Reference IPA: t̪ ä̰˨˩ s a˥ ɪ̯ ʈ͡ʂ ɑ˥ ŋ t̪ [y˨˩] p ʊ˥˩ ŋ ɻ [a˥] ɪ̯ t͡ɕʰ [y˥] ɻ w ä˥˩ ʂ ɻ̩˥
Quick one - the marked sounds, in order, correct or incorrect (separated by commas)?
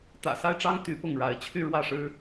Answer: incorrect, incorrect, incorrect